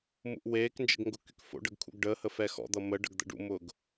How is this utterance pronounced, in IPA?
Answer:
mṵʔweːknd͡ʒə̰ɡ ŋɡʊkykfo̰ɖəɡ kʰṵɡɖəːhə fɛxɔ̰d̪ʌ mə ɖə̰ɡd̪ə̰ɖṵmʊːɡ

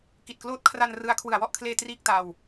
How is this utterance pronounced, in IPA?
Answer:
ki˨˩t̚kloː˦˥t̚kʰra˧n rɯ˦˥a̯ kʰwɯ˨˩a̯wɔ˥˩ʔkʰleː˧ triː˥˩k̚ta˧w

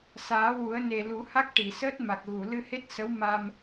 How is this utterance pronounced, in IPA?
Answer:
saː˨˩˦wu˨˩˦ə̯ ne˨˩lu˨˩˦ha˦˥k̚ ʈi˨˩˨səː˦˥t̚ma˨˩k̚ɣu˨˩˨ lɨ˧he˦˥t̚sə˧˥w ma˧m

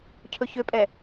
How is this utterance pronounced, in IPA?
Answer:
cʰɵçøpʼɛ

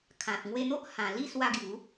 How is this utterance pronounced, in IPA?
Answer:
kʰã˨t̚ ŋwe˧n̪o˦ʔ hã˨˩li˥˧ swa˧ɡju˨˦

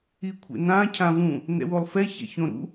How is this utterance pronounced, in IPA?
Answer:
ikʷʰḛnã cʰãvũ | nɛ̰wolˠfɛ çɛ̰çõɾṵ

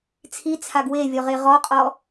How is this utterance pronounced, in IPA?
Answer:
t͡sʰit͡sʰaɡ wevʲɔʁe ʁɔqʼɔ

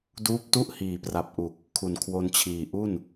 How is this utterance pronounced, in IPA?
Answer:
duː˦˥p̚tu˥˩ʔhiː˨˩pra˨˩p̚ ʔu˨˩k̚ | kʰu˨˩nkʰwo˧nt͡ɕʰiː˨˩ʔu˥˩n

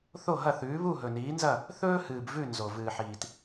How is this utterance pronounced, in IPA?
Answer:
θo˥˩ɦɐ˥˩θʉː˩˥ βu˥˩ɦɵ˩niː˩˥nzɐ˥˩ | θɵː˥hɨː˩bvʉ˥˩ nzo˩ vɨː˩ħiː˩t

